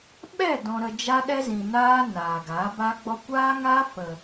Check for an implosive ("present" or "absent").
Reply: present